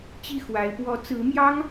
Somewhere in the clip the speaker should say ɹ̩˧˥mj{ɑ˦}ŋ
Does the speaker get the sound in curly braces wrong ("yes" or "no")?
yes